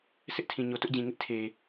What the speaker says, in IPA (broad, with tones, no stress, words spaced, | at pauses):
sɪ˦ʔtʰĩ˨ ɲo˨tʊ˦ʔd͡ʑĩ˨ŋɪ˦ʔ tʰe˨